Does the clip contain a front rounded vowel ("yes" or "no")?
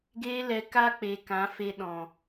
no